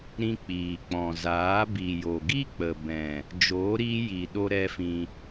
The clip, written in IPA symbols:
ɾ ĩ˧ k͡p iː˨ k͡p ɔ̃˨ z aː˨˦ b i˨ j o˨ ɡ i˦ k͡p ə˨ b ɛ̃˨ | d͡ʒ oː˨˦ ɾ iː˧ j i˨ ɗ o˧ ɾ ɛ˦ f ĩ˧

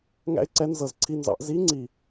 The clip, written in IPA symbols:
ŋ æ̰˥ ɪ̯ ǀ ɛ˧˥ n z ɤ˨˩ z ǀʰ i˧˥˧ n z ɑ̰˨˩˦ ʔ z i˧˥ ŋ͡ǀ i˨˩

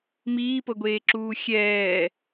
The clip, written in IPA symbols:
m iː p ɤ ɡʷ eː ǁ uː xʲ ɛː

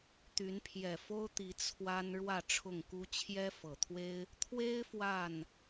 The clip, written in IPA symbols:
t̪ y˨˦ n pʰ j ɛ˨˩ f o˦ ʊ̯ t̪ i˨˦ t͡sʰ w a˦ n ɻ w ä˥˨ ʈ͡ʂʰ ʊ˥˨ ŋ k u˦ t͡ɕʰ j ɛ˦ f ɤ˨˩ t̪ʰ w e˦ ɪ̯ | t̪ʰ w e˦ ɪ̯ f w a˥˨ n

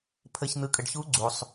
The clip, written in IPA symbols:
pʰ ə˨ ç n̪ ɯ˨ kʼ ə˨ ɖ ç u˧˥ ɡ͡ǀ u˨ sˤ

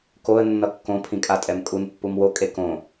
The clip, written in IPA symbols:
k o ə̯ nː ʌ kː õ pʰ ĩ kʼ a tʼ ɛ m kʼ u n pː u m w o kʼ e k õ

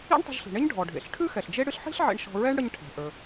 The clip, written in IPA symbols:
ḭ˥ ɳ tˤ ə̤˧ ʒ ɬ i̤˩ ɳ e˥ ɲ ɖʱ ɔ˩ ɖʱ ḛ˩ ɬ ʈʰ ʉ˥ x ɛ˩ ɬ d͡ʒ e˥ ɽ ɨ˥ ɬ ħ i̤˥ ɬ ʕ ḛ˧ ɳ ʃ ɔ̤˧ ɹ ɛ˥ ɳ ɽ ə˧ ɲ ʈʰ ɛ̤˩ ʔ ə˞˩

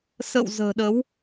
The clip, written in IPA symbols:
s ə̰˧˨ w z ə̤ː˨˩ ɗ ə˨˦ w

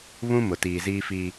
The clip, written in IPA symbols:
β ũ˦ m ʊ˨ t iː˨ z iː˦ f i˦

